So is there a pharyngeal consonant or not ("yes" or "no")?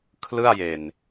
no